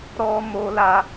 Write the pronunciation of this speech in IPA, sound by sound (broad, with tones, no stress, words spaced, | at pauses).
ɾɔ˦ mo˧la˧